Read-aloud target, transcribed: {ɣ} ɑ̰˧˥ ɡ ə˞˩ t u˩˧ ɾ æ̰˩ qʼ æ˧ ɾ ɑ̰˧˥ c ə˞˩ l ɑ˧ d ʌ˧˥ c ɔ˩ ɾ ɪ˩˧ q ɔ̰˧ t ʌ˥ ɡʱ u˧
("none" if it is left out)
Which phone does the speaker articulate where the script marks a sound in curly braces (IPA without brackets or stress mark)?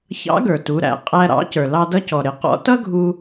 ç